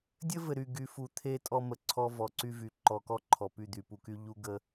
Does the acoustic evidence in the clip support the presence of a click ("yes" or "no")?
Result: yes